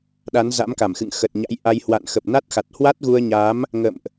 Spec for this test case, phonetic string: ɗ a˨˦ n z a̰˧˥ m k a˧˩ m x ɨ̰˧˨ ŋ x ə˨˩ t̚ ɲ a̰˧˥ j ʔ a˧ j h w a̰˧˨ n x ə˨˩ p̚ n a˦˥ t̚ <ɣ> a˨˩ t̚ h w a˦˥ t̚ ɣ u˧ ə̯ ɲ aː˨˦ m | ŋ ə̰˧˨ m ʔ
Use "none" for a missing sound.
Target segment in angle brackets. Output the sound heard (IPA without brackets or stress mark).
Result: x